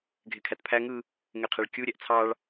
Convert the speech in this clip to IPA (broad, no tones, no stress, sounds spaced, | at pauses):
ɡʱ e kʰ æ t pʰ æ ŋ ɯ | ŋ e qʰ e ɭ kʲ u ɾʲ æ ʔ t͡sʰ ɑ ɭ